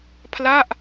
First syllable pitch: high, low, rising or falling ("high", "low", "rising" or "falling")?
falling